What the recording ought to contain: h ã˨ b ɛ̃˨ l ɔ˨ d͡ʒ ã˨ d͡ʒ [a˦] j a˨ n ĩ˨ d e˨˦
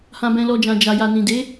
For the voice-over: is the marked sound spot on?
no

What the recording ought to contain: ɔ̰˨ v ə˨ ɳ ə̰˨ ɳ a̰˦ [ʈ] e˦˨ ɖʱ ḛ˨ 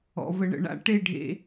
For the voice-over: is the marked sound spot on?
yes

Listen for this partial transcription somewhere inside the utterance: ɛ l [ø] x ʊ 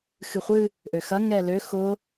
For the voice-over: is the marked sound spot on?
yes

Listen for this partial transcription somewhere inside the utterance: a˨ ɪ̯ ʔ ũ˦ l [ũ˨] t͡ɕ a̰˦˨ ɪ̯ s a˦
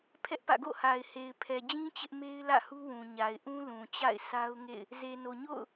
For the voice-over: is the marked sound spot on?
yes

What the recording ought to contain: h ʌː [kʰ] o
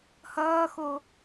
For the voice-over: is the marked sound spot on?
no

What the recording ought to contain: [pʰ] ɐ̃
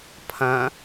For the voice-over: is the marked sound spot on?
yes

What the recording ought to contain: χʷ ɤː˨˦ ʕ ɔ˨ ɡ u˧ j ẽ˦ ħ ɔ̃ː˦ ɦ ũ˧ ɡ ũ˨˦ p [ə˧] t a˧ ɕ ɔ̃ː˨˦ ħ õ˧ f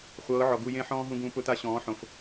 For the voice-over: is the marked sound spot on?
no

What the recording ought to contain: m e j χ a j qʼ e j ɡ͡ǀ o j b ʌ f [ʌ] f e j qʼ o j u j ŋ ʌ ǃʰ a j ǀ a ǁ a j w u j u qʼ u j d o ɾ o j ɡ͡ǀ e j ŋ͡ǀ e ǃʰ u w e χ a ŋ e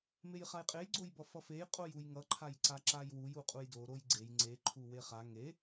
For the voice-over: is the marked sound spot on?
yes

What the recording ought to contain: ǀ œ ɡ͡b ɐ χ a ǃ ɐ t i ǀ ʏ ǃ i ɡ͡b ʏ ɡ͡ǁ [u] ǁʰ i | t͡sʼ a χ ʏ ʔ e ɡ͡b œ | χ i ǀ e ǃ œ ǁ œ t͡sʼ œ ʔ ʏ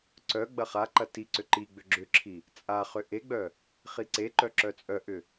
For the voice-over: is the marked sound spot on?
no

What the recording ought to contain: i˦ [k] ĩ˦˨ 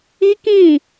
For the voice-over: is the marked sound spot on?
yes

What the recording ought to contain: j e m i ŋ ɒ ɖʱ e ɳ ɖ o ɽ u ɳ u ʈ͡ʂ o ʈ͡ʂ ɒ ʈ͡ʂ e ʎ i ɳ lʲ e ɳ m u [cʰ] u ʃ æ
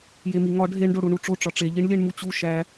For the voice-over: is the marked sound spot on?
no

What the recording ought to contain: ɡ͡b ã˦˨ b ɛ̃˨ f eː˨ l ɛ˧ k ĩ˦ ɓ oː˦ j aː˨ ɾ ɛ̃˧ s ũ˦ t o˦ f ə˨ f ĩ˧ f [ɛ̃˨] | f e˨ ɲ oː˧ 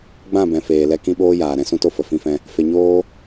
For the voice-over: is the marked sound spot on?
no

